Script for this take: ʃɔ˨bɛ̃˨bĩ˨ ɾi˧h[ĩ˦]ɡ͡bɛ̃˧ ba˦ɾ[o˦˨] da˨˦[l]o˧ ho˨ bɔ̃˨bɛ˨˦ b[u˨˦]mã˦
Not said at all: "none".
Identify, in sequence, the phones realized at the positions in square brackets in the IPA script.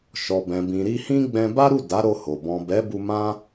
ĩ˦, u˦˨, ɾ, u˧

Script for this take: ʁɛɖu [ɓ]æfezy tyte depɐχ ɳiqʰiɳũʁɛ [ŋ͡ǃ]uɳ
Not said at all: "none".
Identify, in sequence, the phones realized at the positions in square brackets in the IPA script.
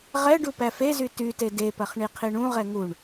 p, ŋ

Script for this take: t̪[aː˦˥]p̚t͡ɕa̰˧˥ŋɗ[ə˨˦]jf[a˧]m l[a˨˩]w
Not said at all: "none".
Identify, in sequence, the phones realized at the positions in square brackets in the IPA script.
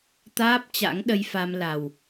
aː˦˥, ə˧, a˧, a˨˩

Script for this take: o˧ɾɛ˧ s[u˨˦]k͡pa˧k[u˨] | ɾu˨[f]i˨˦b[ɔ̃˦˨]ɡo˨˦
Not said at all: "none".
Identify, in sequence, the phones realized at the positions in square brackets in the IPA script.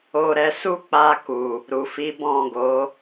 u˦, u˨, f, ɔ̃˦˨

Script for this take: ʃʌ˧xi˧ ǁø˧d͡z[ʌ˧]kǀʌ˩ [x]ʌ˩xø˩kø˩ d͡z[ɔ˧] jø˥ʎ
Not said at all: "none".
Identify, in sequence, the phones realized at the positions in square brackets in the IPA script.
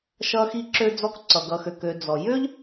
ɔ˧, ɡ, ɔ˩

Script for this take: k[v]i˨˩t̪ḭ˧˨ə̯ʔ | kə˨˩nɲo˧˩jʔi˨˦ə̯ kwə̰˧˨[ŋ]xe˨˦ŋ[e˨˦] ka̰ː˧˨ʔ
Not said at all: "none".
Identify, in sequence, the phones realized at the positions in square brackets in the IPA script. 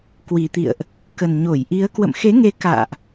w, m, e˨˦

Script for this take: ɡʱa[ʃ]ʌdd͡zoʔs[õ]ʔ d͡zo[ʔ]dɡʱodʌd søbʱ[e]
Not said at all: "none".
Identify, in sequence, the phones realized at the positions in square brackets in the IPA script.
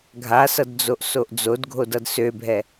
s, o, none, ɛ

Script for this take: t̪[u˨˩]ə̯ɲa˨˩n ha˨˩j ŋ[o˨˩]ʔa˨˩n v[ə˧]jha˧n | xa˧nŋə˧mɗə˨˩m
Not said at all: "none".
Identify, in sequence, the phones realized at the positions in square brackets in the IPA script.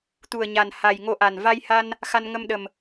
u˨˩, o˧, a˧

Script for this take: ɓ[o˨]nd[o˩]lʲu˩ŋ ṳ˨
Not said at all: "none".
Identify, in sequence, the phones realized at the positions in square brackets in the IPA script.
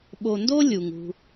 o˨, o˥

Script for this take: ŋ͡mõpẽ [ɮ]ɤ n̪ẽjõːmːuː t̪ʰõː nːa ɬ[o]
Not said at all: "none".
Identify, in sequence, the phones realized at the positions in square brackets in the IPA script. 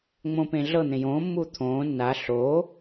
ɮ, o

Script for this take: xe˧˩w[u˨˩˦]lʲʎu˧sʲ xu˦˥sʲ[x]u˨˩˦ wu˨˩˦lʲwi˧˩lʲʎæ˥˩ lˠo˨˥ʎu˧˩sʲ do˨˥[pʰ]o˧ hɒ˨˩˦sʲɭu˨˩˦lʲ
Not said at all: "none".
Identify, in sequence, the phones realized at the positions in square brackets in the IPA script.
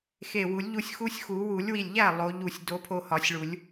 u˨˩˦, x, pʰ

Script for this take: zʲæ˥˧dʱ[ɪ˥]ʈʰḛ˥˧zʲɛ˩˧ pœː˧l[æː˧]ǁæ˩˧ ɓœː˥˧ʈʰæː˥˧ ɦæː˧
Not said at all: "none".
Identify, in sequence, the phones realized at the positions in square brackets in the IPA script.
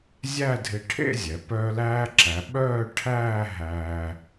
ɪ˧, æː˧

